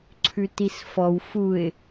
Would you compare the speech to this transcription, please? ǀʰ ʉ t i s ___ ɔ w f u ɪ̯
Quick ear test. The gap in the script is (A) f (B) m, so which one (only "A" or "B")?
A